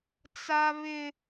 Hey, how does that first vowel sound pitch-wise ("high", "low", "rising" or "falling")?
high